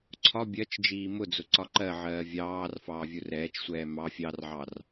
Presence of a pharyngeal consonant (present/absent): present